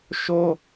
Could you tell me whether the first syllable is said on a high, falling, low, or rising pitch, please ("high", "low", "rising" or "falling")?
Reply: high